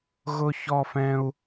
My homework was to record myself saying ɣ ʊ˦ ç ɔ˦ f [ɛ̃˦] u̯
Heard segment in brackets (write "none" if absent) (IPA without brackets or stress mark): ɛ̃˦